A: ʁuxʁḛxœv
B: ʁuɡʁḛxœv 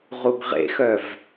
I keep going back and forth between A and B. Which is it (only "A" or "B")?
B